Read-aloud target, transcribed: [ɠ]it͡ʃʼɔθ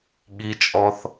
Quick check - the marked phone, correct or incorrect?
correct